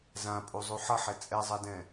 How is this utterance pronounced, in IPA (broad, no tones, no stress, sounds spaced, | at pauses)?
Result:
z ã pʼ u zˤ u ħ ʌ ħ ɛ t͡sʼ ɛ zˤ a d ɛ̃